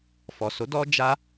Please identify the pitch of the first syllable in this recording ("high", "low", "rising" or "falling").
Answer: low